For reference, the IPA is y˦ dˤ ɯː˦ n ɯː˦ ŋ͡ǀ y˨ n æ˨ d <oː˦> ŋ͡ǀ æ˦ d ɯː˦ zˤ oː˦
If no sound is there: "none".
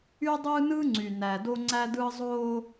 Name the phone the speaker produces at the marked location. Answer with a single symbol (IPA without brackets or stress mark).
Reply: o˦